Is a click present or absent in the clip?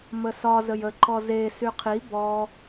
present